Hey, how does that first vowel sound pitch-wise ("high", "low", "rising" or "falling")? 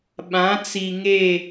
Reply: rising